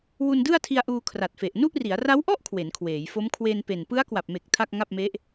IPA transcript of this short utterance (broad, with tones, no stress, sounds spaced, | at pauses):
w u˧ n d ɯ˥˩ a̯ tʰ i˧ a̯ ʔ uː˧ kʰ r a˨˩ t̚ f e˨˩ ʔ n u˥˩ ʔ r i˩˦ a̯ r a˦˥ w ʔ ɔ˥˩ ʔ kʰ w e˩˦ n kʰ w eː˩˦ j f o˦˥ m kʰ w e˧ n p e˨˩ n p ɯ˦˥ a̯ k w a˨˩ p̚ m e˨˩ k̚ tʰ a˥˩ k̚ ŋ a˥˩ p̚ m e˦˥ ʔ